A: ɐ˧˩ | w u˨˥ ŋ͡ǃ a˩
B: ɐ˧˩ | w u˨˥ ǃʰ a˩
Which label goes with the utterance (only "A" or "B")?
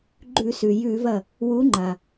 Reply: A